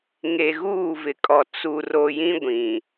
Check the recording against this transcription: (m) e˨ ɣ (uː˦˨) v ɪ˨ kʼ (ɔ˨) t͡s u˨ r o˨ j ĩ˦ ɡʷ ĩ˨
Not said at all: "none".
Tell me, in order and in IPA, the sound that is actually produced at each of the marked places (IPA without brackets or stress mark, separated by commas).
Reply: ŋ, uː˦˨, ɔ˨